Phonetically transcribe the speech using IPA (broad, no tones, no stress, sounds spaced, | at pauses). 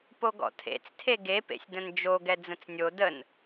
p o ɡ ɔ̰ tʰ ḛ t͡s tʰ e ɡ e p ḛ sʲ d ə̃ n d͡ʒ o ɡ ɛ d͡z ə̃ t͡s nʲ o d ə n